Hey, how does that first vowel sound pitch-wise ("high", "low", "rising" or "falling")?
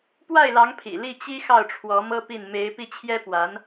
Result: falling